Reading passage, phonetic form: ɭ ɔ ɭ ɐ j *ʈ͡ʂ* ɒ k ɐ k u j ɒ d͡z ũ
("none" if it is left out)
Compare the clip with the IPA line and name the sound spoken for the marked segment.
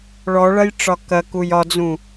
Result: ʈ͡ʂ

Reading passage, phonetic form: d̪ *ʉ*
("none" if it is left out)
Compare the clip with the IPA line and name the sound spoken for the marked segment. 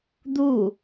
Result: u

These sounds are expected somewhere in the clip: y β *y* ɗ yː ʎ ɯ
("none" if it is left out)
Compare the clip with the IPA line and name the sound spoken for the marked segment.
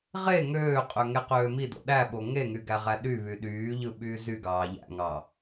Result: y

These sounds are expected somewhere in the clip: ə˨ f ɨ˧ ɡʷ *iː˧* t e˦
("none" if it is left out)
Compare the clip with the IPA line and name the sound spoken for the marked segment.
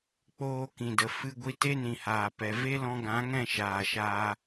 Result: i˧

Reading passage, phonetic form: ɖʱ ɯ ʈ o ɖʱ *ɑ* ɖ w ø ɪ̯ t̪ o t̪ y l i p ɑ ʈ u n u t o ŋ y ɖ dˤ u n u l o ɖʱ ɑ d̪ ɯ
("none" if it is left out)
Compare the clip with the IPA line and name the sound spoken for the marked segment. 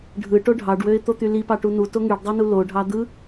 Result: ɑ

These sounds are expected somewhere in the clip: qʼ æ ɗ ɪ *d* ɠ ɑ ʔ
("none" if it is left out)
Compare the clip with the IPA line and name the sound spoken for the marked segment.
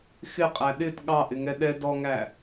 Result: t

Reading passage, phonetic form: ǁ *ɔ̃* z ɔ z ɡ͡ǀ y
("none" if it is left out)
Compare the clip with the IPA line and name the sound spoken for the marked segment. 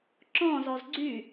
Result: ɔ̃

